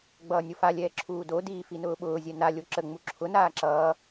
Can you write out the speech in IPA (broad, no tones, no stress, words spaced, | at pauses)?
ɡ͡bʌːnʲofalʲɛː ǁʰuːdodiː finʊːɓʊːzʲɛ nalʲo ǁə ŋ͡muǁʰʊnaː ǁʌː